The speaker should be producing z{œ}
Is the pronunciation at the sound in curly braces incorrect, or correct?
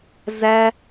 incorrect